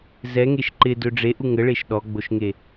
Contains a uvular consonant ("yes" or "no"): no